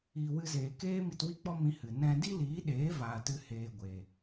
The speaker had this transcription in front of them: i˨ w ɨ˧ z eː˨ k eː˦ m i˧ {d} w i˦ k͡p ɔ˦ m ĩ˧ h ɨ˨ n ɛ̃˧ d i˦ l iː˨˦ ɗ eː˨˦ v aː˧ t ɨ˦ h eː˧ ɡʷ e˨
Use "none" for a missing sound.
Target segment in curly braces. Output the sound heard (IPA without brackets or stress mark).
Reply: t